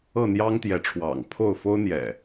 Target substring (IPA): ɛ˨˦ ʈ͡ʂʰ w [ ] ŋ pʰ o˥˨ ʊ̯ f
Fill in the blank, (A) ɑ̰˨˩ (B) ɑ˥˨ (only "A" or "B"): A